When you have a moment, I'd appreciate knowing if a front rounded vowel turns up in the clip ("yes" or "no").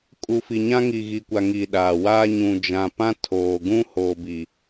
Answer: no